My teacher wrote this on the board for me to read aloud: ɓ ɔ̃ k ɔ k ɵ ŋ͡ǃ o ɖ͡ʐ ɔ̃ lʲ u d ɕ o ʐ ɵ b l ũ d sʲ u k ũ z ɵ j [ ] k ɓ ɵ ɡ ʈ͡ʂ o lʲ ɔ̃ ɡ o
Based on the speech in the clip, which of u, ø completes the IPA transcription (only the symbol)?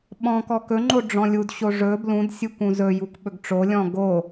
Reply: u